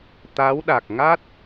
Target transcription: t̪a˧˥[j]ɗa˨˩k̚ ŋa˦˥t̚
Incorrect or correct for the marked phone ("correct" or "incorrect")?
incorrect